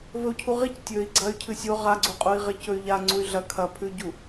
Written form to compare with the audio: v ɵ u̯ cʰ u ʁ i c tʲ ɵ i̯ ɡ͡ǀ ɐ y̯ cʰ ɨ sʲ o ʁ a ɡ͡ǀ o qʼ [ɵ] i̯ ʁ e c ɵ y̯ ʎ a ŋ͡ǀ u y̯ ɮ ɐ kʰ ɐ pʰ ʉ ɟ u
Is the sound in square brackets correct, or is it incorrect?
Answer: incorrect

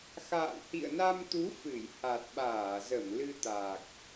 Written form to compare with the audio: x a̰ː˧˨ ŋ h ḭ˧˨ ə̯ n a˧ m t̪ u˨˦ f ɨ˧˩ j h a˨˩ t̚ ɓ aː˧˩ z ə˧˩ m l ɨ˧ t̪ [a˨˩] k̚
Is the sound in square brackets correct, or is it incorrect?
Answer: correct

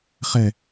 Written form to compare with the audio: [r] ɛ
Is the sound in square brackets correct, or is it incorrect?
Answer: incorrect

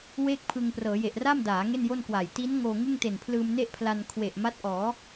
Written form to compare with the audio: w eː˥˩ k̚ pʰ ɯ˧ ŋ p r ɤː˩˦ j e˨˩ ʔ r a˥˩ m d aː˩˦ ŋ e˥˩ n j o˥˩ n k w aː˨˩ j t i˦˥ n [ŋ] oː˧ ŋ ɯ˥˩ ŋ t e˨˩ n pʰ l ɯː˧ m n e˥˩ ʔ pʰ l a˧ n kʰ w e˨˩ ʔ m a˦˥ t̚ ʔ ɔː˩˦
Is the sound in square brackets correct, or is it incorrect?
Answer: correct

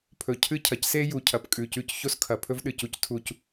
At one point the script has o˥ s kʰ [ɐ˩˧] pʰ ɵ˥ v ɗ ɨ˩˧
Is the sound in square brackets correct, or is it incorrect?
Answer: correct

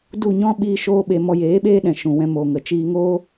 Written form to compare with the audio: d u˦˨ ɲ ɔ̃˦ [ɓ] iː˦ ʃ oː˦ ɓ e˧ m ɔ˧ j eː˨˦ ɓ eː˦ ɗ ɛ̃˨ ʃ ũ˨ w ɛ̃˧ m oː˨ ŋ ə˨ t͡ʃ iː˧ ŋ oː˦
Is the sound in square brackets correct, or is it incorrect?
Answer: correct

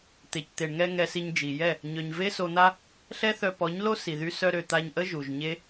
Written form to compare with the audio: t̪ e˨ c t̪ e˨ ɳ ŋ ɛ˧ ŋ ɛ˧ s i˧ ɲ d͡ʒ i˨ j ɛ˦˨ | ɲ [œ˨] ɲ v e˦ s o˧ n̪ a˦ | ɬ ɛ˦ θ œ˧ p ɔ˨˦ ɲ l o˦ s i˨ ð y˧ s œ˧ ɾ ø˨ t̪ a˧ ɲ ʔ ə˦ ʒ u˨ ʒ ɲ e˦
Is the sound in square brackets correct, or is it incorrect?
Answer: correct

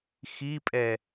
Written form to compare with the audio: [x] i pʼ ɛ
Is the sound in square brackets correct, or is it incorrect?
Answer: correct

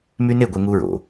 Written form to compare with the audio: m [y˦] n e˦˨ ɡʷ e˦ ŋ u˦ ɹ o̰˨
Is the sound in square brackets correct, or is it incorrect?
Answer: correct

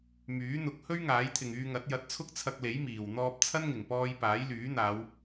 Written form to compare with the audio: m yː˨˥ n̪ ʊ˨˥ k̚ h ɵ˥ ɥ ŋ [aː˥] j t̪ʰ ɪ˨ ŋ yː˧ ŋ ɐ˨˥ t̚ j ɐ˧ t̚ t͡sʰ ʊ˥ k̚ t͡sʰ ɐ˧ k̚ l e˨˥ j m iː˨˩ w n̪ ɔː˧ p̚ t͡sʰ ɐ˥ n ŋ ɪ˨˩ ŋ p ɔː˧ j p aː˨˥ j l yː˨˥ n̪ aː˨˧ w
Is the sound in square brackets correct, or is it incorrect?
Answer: incorrect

